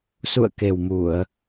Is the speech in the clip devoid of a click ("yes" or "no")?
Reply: yes